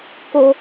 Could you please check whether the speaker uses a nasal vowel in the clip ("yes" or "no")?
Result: no